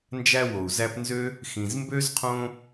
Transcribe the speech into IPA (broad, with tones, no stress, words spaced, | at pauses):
nd͡ʒæ˦wo˩u̯zæ˦pnzø˥ | xĩ˩zmbø˥zqʰõ˦